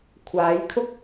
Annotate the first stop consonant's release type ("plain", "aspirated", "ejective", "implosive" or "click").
aspirated